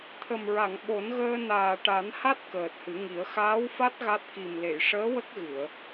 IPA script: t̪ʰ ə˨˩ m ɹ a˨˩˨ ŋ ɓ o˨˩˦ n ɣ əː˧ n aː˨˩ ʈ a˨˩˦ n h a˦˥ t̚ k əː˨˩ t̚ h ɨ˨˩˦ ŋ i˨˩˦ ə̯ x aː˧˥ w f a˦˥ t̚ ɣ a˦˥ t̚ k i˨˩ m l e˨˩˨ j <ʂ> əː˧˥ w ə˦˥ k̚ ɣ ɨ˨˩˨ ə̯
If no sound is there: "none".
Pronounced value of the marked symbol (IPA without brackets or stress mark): ʂ